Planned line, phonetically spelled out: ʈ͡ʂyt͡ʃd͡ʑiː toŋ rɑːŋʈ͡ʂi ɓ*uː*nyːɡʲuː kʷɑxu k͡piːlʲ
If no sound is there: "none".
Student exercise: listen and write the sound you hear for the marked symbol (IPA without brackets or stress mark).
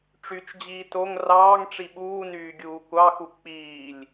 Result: uː